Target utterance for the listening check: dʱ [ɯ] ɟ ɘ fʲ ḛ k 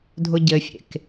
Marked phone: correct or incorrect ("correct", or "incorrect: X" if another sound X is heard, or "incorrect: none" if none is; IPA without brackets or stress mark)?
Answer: incorrect: ʊ